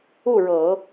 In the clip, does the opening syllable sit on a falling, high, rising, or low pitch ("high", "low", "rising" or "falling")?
falling